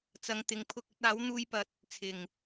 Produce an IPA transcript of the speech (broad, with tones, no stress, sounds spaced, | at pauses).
t͡s ɐ˧ ŋ t̪ ɪ˧ ŋ pʰ ʊ˥ k̚ ɵ˧ t̚ aː˨˥ w n̪ uː˧ j p ɐ˨ t̚ | t͡sʰ ɪ˨˩ ŋ